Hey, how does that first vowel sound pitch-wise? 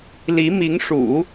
rising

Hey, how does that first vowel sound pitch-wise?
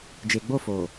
low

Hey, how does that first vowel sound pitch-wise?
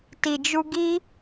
low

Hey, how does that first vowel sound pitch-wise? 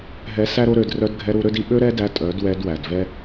rising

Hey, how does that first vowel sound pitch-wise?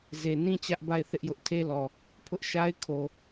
low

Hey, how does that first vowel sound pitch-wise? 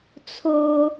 high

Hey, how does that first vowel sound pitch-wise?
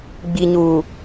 low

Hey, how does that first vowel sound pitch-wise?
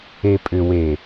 low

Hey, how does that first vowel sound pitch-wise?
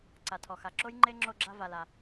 low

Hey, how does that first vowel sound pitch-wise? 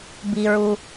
low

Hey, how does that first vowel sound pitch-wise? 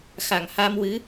low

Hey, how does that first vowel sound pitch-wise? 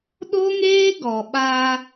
high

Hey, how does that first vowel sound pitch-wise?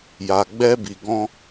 low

